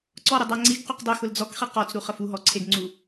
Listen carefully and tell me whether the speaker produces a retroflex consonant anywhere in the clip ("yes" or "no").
no